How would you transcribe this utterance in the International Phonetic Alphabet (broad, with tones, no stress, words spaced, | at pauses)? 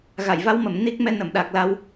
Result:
ɣa˧˩jva˧wmə˧˩m ni˦˥k̚mɛ˧ nə˧˩mɗa˨˩k̚la˧w